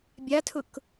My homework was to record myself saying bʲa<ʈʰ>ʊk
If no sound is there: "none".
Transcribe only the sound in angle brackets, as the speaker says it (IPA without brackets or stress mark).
tʰ